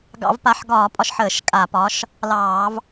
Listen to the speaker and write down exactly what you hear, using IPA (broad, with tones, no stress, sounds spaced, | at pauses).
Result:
ɡ ɑ̰˧˩˧ v p a˨˥ ħ ɡ ɒː˧˩˧ pʼ ɒ˨˥ ʃ ħ əː˧˩˧ ʃ kʼ a˧˩˧ p ɒ˨˥ ʃ | l ɑː˧˩˧ v